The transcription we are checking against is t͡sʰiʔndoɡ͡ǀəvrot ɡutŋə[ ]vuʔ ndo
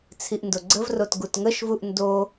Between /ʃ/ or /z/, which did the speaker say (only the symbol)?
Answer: ʃ